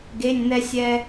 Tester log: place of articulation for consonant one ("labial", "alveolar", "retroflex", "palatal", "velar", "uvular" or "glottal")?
velar